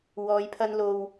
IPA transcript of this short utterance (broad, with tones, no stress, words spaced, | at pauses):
wɔː˨˧jpʰɐ˧n lo˨w